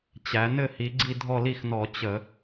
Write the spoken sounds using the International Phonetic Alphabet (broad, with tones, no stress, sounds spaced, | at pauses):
t͡ɕ æ˩˧ n ɘ˦˨ h i˩˧ ɡ͡ǀ i˦˨ dʱ ɔ˦˨ l i˦˨ x n ɔ˧˩˧ t͡ɕ ə˧˩˧